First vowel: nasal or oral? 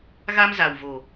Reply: oral